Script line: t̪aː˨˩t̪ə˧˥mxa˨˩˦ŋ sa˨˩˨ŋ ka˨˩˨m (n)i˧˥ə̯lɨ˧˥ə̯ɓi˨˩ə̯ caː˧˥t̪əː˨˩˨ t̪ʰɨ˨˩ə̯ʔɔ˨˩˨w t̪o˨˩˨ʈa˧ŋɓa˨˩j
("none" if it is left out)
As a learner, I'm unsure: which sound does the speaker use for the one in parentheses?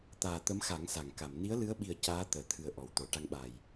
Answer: n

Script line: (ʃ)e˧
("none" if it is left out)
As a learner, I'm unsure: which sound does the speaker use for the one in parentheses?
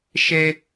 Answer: ʃ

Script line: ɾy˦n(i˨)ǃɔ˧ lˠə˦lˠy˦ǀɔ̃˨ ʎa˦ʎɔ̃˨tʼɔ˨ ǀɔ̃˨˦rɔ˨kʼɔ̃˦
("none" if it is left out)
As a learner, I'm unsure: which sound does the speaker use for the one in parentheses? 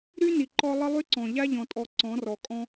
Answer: i˨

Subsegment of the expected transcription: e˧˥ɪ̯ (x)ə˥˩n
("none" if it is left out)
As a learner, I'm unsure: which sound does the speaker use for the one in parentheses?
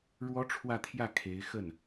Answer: x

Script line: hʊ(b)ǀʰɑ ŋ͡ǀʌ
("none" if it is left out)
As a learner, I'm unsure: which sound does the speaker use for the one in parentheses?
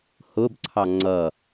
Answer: b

